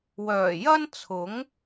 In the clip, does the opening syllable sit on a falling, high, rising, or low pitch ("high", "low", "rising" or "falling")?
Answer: low